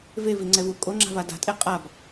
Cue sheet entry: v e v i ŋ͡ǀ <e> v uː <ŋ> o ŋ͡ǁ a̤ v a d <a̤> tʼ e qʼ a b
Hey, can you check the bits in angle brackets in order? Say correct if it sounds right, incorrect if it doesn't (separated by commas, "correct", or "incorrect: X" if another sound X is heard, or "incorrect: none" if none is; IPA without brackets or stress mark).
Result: incorrect: ɛ, incorrect: kʼ, correct